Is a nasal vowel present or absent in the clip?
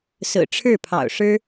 absent